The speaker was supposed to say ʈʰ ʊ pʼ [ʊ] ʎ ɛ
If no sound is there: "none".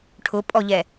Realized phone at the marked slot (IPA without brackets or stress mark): ɔ